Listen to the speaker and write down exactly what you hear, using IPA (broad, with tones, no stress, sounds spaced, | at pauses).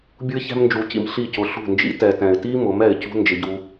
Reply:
bʲ u˦ ɪ̯ ç ɛ̤˦ m n d͡ʒ u˧ c ḭ˧ m ɬ i˦˨ c ʊ˧ ɬ ṳ˦˨ n d͡ʒ ḭ˦ t ɛ˨ t ɛ̃˨ ɪ̯ t i˦ m ʊ˨˦ m ɛ˨ ɪ̯ c ṳ˧ n d͡ʒ ɪ˧ ɟ u˧